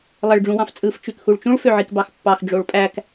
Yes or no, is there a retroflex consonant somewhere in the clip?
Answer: yes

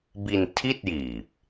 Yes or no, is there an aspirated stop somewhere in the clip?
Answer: yes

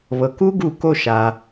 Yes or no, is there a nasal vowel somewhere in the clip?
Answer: no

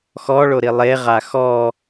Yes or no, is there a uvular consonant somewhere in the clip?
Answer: yes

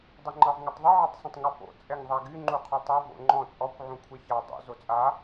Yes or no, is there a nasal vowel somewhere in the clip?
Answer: yes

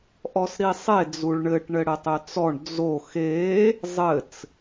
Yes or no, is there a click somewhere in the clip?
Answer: no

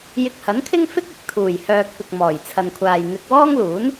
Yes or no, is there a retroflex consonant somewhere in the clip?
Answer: no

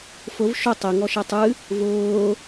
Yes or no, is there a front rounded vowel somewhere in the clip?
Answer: no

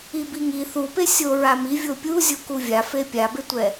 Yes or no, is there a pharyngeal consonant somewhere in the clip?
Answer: no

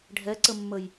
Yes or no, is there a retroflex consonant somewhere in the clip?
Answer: yes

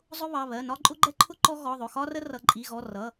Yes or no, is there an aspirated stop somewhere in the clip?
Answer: yes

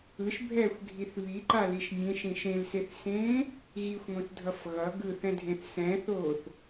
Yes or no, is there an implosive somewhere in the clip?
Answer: no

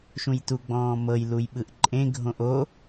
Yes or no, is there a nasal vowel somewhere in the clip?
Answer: yes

